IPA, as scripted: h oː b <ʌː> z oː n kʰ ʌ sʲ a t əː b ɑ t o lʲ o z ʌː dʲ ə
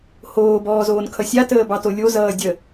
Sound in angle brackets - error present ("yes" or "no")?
yes